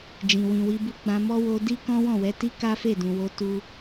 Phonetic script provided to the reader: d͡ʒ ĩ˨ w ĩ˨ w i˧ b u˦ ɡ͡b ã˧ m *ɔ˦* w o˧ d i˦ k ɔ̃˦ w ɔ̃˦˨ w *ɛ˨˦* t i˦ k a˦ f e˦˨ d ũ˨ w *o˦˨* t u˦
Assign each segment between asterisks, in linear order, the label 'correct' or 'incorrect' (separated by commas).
correct, correct, incorrect